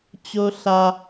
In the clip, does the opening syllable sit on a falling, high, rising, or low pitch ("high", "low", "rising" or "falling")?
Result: high